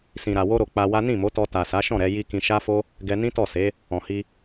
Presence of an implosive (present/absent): absent